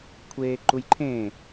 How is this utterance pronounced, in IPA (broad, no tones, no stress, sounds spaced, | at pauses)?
kʷʰ eː ǃ u j ǃʰ ẽ